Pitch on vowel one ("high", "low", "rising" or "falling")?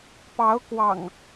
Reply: rising